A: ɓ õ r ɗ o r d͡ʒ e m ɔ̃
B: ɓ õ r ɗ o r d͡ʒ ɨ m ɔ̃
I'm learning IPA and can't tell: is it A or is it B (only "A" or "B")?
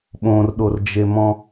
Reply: A